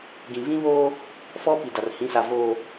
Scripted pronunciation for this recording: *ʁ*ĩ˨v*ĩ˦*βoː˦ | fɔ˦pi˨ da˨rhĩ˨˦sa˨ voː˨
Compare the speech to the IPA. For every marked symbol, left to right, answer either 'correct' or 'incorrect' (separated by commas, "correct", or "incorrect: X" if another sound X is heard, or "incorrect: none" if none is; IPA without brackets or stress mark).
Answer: incorrect: ɡ, correct